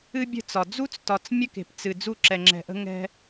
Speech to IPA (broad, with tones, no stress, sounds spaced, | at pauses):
ɨ˦ bʲ ə̤˦˨ t͡s ɒ˨ d͡z u˦ t͡s t ɒ˨ t͡s mʲ ə˦ k e̤˨ p t͡s ɨ˨ d͡z u˦˨ ǁ ɛ˨ ŋ͡ǁ ɛ̤˨ ʔ ə̤˦ ŋ ɛ̤˦